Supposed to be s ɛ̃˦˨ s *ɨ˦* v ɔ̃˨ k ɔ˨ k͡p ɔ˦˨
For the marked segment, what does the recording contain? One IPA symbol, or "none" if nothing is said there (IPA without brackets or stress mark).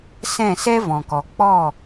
ɛ˦